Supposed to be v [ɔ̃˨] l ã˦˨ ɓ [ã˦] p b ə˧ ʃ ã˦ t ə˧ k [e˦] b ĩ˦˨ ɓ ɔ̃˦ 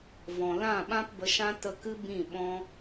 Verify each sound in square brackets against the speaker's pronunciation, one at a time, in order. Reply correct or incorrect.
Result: correct, correct, incorrect

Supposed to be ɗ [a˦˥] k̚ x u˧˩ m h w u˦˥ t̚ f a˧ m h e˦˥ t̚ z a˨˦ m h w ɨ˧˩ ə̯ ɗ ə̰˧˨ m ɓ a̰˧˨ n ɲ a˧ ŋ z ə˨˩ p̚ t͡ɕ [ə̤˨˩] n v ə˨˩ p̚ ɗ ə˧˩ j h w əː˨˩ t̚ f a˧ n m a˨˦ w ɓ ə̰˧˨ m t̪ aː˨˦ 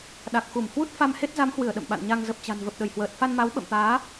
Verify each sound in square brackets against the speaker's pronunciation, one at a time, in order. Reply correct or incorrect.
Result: incorrect, incorrect

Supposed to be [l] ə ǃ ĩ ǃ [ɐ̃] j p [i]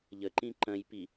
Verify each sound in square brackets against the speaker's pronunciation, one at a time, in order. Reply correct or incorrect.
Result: incorrect, correct, correct

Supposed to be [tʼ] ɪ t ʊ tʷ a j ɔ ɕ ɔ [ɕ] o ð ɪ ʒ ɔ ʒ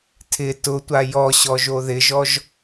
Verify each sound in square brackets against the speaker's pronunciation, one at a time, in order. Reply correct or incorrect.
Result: incorrect, incorrect

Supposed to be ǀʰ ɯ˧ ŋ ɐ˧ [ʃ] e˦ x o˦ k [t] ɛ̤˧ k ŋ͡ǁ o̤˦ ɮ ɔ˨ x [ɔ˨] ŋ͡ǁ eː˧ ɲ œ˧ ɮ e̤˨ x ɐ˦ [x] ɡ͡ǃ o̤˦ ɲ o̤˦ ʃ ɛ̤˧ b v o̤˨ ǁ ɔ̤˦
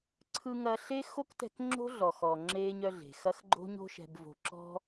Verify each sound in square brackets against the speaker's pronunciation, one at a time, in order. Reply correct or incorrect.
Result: incorrect, correct, correct, correct

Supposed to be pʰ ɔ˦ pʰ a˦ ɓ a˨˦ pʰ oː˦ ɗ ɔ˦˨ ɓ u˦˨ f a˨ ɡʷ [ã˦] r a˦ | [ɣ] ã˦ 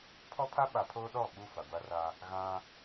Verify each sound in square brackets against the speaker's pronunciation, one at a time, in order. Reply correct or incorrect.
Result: incorrect, correct

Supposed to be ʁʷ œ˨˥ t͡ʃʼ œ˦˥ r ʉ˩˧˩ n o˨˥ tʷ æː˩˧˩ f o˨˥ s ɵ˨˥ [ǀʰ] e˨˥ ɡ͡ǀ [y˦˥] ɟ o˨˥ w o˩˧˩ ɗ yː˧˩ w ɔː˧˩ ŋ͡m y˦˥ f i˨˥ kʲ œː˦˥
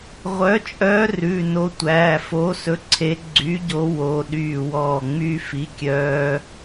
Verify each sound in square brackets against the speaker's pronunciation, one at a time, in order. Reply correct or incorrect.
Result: correct, incorrect

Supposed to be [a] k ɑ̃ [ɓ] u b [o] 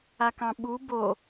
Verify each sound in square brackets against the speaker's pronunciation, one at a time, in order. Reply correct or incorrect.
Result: correct, correct, correct

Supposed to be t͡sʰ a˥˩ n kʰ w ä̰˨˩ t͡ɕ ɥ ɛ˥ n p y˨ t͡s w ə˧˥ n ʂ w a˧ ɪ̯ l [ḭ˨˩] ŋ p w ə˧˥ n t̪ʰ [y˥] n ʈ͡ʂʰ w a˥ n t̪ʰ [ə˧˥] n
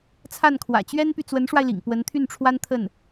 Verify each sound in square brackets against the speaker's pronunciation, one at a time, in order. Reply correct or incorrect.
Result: correct, incorrect, incorrect

